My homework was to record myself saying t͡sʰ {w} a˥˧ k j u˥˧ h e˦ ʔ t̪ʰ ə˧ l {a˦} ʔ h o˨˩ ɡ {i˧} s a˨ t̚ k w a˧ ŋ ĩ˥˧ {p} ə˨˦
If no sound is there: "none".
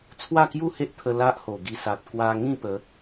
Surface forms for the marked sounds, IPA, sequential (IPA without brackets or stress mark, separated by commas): w, a˦, i˧, p